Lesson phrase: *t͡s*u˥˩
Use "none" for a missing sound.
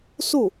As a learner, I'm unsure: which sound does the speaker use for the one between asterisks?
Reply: s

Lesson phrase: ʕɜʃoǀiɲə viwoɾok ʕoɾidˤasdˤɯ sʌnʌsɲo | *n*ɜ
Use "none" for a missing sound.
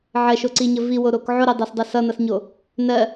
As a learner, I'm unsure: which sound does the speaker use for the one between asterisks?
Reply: n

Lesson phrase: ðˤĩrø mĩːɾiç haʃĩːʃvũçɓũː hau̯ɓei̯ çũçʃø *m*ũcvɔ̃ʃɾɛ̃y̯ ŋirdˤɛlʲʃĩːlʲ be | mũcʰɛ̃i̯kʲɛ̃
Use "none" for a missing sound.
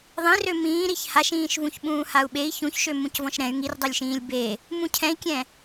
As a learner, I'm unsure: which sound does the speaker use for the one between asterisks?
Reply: m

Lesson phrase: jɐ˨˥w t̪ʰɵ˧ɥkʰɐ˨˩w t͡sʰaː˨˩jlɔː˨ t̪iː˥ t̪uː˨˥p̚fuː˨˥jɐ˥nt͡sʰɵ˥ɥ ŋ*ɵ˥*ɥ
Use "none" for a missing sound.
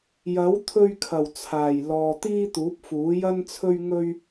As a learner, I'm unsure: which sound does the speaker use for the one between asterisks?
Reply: ɵ˥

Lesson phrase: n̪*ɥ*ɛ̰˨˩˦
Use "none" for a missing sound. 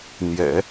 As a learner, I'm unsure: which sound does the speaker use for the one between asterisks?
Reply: j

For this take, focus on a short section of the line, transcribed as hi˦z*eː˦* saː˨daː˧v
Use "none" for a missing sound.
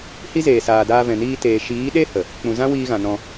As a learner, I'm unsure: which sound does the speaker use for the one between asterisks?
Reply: eː˨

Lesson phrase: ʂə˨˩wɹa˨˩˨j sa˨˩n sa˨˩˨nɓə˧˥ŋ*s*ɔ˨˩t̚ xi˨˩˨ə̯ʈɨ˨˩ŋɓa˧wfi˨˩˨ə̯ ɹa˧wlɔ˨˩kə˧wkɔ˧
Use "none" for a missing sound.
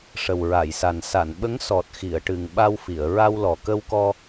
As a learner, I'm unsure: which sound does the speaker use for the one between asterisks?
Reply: s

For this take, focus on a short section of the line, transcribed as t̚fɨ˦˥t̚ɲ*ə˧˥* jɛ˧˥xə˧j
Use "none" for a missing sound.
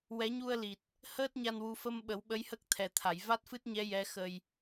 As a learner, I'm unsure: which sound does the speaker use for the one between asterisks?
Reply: ɛ˧˥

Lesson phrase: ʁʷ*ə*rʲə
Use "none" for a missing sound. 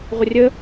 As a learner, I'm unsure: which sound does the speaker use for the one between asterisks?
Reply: ə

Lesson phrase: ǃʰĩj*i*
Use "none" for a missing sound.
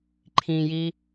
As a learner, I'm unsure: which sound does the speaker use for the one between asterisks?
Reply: i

